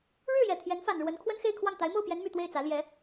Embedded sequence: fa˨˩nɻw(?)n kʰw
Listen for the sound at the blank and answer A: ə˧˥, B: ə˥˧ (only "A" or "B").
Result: A